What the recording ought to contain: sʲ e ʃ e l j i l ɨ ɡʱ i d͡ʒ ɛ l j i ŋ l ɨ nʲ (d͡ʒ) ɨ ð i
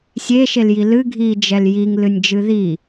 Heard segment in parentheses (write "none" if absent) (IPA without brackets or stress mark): d͡ʒ